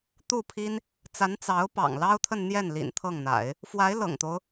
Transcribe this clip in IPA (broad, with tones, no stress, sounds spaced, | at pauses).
t̪ u˥˩ pʰ i˥ n | t͡s a˧˥ n t͡s ɑ˧˥ ʊ̯ p ɑ̰˨˩ ŋ l ɑ˥ ʊ̯ t̪ʰ ə˥˧ n n̪ j ɛ˥˩ n l ḭ˨˩ n t̪ʰ ɤ˥˩ ŋ n̪ a̰˨˩˦ ɪ̯ | f w a˧˥ ɪ̯ l ɤ̰˨˩ ŋ t̪ o˦ ʊ̯